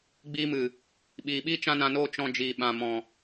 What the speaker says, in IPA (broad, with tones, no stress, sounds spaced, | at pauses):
ɡ͡b iː˧ m ɨ˨ | ɓ iː˨ ɓ iː˦ t͡ʃ ã˦ n ã˧ n oː˦ t͡ʃ ɔ̃˧ d͡ʒ iː˨ ɓ ã˨ m ɔ̃˨